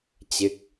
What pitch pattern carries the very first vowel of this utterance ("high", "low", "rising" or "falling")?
falling